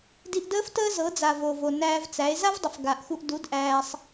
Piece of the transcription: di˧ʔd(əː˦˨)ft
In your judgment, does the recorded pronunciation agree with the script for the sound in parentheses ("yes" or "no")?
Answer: no